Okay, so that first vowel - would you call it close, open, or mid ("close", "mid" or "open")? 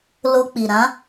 mid